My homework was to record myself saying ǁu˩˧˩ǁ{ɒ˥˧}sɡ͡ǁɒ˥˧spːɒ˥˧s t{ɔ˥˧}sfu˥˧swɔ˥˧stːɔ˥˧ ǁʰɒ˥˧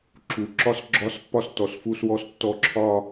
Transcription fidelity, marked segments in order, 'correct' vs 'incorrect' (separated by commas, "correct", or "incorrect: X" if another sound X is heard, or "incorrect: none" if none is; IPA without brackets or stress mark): correct, incorrect: ɔ˩˧˩